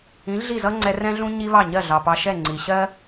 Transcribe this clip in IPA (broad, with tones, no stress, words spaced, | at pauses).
ĩ˩˥ɮi˥˩zʌ˥ŋ͡ǀɛ˧ rɛ̃˥ɮũ˥ ɲi˥βɑ˥˩ ɲɜ˥˩ɮɑ˩pɑ˧ʃɛ˥˩ ŋ͡ǀi˩ɕɜ˥